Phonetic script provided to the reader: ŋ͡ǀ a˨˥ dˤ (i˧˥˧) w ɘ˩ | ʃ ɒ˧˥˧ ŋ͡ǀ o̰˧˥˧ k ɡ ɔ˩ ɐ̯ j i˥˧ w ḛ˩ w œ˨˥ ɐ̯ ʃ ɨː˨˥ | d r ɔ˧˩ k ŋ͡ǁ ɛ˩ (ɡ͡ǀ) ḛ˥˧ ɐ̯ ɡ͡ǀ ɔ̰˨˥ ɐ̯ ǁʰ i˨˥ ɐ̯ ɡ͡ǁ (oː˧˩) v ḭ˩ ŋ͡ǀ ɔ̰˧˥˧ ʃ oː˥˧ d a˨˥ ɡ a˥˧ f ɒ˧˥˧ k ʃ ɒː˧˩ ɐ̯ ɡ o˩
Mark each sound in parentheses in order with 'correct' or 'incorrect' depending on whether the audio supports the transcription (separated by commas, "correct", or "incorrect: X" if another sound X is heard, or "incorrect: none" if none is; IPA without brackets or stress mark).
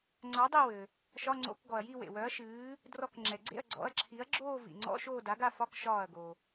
incorrect: i˥˧, correct, incorrect: oː˥˧